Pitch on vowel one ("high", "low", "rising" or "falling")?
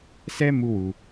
high